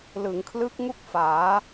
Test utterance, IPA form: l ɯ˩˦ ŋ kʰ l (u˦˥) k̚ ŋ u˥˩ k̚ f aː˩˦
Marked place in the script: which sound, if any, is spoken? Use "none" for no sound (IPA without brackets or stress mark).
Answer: ɯ˦˥